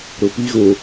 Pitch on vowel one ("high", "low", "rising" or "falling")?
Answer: low